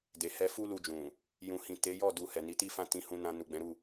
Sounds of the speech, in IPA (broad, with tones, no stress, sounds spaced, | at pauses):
d e˨ h ɛ˧ f u˦ l u˧ d͡ʒ ũ˨ | j ũ˨ h ĩ˨ t e˨˦ j ɔ˦˨ d u˨ h ɛ˨ n i˨˦ t i˦ f ã˦˨ t ĩ˨˦ h ũ˧ n ã˧ n u˨ ɡ͡b ɛ̃˨˦ ɾ u˦˨